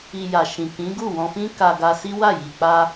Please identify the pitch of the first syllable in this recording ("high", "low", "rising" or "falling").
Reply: low